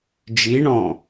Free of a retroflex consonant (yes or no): no